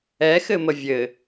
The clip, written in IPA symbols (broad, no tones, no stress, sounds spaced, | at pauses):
ɛ x ɘ m ə vʲ ɘ